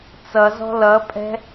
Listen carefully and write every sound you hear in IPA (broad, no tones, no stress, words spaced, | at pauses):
t͡sʌzɔ̤ lʌpʼɛ̤